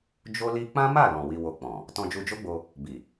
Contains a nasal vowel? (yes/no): yes